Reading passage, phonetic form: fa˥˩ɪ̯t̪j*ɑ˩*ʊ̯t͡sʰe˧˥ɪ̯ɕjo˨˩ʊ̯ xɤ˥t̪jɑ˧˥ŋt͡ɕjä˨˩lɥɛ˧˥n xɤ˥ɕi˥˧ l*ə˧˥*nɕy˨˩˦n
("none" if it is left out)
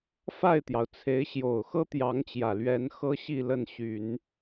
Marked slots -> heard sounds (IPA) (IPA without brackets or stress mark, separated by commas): ɑ˩, ə˥˩